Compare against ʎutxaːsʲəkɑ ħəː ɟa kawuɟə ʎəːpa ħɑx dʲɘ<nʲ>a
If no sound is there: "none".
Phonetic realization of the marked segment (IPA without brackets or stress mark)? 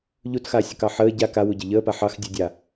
dʲ